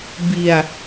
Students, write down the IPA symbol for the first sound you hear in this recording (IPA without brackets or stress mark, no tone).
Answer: b